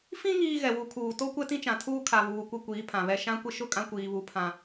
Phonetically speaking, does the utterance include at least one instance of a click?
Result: no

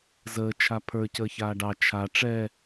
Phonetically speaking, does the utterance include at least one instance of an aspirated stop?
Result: yes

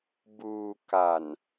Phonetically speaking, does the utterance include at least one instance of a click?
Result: no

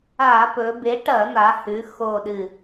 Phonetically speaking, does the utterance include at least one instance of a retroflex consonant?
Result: yes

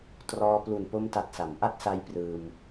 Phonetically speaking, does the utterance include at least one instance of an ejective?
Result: no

